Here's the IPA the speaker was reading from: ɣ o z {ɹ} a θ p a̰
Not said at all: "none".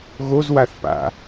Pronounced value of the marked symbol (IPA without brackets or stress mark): w